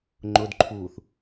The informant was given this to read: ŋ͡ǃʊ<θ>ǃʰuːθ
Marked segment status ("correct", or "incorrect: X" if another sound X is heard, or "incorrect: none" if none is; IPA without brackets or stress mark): incorrect: d